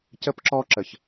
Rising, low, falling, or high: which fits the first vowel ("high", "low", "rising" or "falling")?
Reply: high